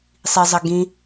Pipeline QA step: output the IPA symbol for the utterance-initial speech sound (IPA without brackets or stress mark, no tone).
sˤ